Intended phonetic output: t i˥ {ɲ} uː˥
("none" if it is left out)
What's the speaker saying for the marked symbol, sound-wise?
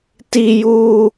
j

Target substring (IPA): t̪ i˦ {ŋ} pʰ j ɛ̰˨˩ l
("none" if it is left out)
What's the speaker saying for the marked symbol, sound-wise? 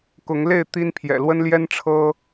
n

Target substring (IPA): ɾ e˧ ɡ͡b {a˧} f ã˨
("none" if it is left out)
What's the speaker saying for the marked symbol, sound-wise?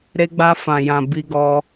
a˧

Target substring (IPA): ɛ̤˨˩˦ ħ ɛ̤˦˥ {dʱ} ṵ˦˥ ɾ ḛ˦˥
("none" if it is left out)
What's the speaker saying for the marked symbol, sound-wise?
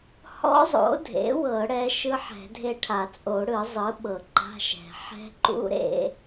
ǃ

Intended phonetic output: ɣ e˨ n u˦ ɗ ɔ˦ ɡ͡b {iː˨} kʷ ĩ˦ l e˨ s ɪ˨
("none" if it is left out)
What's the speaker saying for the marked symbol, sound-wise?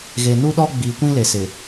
iː˨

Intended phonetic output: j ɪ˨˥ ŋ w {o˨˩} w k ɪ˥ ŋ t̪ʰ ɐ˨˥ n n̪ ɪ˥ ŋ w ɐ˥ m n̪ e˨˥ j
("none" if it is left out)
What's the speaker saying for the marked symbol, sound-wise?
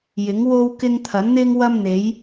o˥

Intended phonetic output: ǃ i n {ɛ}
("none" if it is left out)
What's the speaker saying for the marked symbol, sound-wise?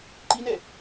ɛ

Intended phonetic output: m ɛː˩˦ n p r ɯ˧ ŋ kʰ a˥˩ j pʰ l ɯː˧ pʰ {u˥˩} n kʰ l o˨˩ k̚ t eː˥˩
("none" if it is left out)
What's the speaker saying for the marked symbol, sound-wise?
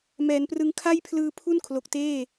u˥˩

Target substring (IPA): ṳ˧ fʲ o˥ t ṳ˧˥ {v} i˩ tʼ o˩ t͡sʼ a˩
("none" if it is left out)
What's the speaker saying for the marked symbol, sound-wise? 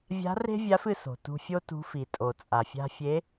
f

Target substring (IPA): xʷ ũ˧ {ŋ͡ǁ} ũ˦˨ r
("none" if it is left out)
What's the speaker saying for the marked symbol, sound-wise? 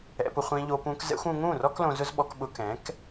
ŋ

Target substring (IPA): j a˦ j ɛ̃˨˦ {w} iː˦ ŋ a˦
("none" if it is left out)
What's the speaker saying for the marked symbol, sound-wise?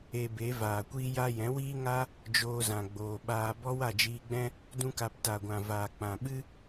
w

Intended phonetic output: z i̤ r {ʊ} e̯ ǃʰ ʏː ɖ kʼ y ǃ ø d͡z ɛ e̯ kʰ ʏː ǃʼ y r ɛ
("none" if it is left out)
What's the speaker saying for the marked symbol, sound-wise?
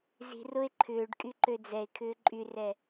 ʊ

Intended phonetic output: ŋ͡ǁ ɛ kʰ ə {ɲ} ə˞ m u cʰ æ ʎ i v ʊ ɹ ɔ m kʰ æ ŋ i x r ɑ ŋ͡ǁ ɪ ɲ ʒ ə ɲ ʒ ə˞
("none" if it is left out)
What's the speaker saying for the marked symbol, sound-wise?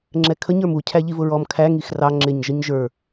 ɲ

